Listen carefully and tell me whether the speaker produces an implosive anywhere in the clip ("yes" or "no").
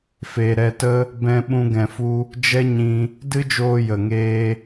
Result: yes